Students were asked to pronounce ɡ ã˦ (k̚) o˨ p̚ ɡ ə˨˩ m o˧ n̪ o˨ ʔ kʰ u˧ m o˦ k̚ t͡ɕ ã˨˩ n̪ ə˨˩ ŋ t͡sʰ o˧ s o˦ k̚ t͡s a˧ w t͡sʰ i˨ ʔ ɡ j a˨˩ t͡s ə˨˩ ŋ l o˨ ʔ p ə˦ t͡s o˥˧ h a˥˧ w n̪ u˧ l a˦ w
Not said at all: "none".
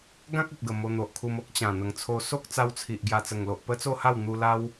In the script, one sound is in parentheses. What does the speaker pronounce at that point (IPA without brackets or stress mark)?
k̚